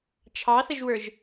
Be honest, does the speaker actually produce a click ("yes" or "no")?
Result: no